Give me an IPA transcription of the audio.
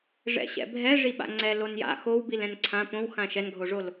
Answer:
ʐ ɛ̰ ɕ ɛ̰ bʱ ɛ ʐ i ɓ a̰ ŋ͡ǀ ɛ l o n j a̰ x o w b i l ɛ̃ n ǀʰ ã p õ w x ã ʃ ɛ n ɡʱ o ʐ o l

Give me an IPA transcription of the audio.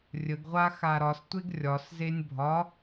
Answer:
rʲ ə ɡ ʁʷ a x a ɾ ɒ s tʷ e ɡ rʲ ɒ s z e nʲ bʱ ɒ

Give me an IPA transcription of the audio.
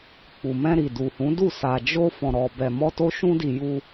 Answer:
k͡p u˨ m ɛ̃˧ ɾ i˨ d u˨ h ũ˨˦ d u˦˨ s a˨ d͡ʒ o˧ f ɔ̃˧ ɾ ɔ˧ b ɛ˧ m ɔ˦ t o˦ ʃ ũ˦ d i˧ j u˧

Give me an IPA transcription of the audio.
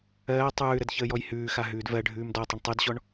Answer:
ɜː tˤ ʉː ɾ ə d ç əː j ɔ j h ʉː x a ɦ ʉː d v ɜ ɖʱ ʉː m d ɔ tˤ ə ɳ tˤ ʉ d ɕ ɔ ɳ

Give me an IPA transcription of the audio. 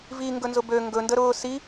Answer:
v i ŋ ɡ ɵ n z ʊ b ø ŋ ɡ ɵ n d ə ɾ ʊː s i

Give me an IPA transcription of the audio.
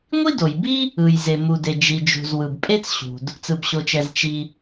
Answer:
ŋʷ i˥ d o˩ j b i˥ | ɯ˩ j z e˩ m u˩ d e˩ d͡ʒ i˩ d͡ʒ ṳ˩ z w ɯ˩ b pʼ e˥ t͡s ɕ ṳ˩ d | t͡s ɯ˩ b ɕ o˩ t͡ʃ ɛ˩ z t͡ʃ i˩

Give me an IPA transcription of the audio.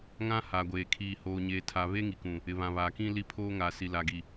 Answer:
ŋ ã˦ h a˨ ɡʷ eː˨ kʰ iː˨ h oː˨ ɲ eː˨ tʰ a˨ β e˦ ŋ i˨ k ũ˨ | ɪ˨ β ã˨ β aː˨ k ĩ˦ l i˦ pʰ oː˦ ŋ a˨ s i˨ l a˨ ɡ i˨

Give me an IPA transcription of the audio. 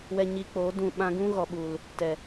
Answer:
w ɛ˧ ɲ i˧ k͡p oː˨˦ d ũ˦˨ ɓ ã˧ ɡ ũ˦ ɣ ɔ˨ ɓ u˨ l | t ɛ˨

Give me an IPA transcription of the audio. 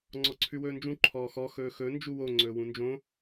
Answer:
ŋ͡ǀ ɔ ǀʰ ʉ w ɵː n d͡ʒ ũ ǃʰ ɔː x ɔ x ɵː x ɵ n d͡ʒ u w o ŋ͡ǀ ɵː w ũ n d͡ʒ õ

